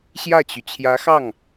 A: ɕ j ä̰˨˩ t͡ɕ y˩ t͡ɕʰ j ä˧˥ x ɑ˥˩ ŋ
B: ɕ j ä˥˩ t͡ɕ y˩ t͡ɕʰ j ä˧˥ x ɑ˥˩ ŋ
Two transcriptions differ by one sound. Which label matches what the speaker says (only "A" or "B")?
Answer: B